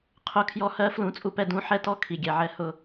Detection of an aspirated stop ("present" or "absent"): present